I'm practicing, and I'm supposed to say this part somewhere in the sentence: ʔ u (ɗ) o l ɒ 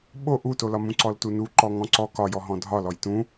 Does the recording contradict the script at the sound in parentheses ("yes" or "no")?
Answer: yes